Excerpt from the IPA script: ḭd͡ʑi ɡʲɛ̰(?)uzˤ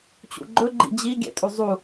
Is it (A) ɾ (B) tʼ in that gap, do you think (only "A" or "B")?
B